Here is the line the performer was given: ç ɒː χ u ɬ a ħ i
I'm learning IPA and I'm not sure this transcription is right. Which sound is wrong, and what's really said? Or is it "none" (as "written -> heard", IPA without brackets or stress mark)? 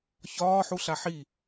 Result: χ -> ħ